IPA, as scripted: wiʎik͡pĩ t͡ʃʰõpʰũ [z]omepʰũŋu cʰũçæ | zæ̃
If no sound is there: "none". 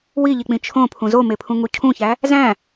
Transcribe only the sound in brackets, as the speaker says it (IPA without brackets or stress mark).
z